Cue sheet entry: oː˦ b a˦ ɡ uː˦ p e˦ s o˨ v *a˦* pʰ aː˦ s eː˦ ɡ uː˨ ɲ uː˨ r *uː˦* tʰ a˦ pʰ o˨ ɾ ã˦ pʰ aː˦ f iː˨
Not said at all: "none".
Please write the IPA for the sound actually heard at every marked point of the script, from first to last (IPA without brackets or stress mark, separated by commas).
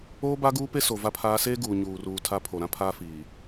a˦, uː˨